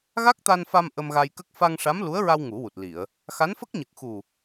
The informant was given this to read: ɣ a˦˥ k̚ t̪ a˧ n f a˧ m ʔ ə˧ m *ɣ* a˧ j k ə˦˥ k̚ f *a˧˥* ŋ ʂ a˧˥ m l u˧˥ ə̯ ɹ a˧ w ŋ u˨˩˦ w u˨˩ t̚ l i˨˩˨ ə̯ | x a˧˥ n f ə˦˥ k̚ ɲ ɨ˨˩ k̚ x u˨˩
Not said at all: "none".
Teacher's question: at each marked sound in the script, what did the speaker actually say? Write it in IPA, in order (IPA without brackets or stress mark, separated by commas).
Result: ɣ, a˧